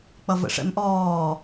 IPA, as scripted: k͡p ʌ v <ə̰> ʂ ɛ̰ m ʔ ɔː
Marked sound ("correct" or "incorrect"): correct